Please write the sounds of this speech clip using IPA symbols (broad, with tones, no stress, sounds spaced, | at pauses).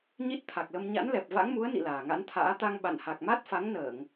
ɲ i˦˥ t̚ t̪ʰ a˨˩ k̚ l ə˧ m ɲ a̰˧˥ n l ɛ˨˩ p̚ v a̰˧˥ ŋ m u˨˦ ə̯ n ḭ˧˨ l aː˨˩ ŋ a̰˧˥ n t̪ʰ a̰ː˧˥ t̪ a˧ ŋ ɓ a̰˧˨ n h a˨˩ k̚ m a˦˥ t̚ f a˨˦ ŋ n əː˧˩˨ ŋ